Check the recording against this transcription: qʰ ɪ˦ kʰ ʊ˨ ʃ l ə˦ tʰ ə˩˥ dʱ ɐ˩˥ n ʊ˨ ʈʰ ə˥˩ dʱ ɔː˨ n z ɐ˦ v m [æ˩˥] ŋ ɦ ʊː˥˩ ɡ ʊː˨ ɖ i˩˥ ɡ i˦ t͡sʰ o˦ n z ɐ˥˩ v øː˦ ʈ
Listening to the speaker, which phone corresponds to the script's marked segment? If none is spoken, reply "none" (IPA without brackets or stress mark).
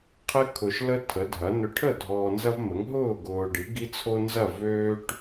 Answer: ə˩˥